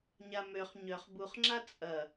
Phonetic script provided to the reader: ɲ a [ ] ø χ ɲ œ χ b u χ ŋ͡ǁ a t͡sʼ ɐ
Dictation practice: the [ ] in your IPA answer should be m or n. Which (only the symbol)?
m